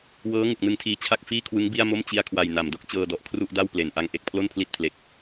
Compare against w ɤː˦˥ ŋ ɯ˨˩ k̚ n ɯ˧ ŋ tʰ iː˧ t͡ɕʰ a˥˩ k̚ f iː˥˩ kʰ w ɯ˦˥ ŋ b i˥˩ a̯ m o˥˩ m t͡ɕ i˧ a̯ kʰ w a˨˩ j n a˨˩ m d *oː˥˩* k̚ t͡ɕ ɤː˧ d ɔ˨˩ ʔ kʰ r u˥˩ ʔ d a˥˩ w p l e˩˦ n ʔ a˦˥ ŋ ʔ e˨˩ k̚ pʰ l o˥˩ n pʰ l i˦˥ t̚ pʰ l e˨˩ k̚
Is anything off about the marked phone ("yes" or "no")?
yes